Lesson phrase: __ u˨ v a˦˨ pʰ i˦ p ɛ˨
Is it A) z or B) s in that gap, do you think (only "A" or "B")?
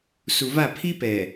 B